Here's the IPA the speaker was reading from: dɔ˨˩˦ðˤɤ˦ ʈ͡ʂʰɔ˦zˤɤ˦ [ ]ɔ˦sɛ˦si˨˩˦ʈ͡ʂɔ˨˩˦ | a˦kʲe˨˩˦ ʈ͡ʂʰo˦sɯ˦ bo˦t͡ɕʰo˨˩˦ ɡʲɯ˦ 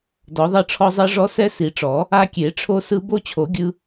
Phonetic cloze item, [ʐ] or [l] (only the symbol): ʐ